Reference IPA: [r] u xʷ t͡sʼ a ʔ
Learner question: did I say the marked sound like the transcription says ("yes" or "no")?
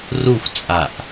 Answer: yes